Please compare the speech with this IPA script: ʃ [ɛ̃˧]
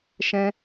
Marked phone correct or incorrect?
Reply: correct